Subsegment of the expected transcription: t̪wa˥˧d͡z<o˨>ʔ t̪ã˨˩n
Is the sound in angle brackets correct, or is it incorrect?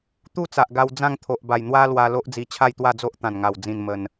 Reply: incorrect